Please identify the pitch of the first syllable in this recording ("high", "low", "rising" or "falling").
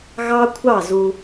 high